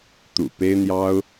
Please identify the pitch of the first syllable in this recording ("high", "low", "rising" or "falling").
low